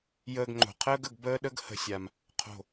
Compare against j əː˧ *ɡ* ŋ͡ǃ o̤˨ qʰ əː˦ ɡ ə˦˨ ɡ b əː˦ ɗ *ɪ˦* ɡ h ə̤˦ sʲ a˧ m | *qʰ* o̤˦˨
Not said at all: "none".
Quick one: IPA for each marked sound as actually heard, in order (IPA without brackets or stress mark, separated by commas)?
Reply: ɡ, ə˦, qʰ